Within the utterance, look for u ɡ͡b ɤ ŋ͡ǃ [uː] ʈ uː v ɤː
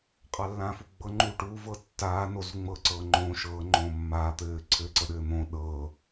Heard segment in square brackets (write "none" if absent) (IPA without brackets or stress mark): uː